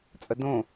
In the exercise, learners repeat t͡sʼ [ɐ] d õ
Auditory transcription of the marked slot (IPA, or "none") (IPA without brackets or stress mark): ə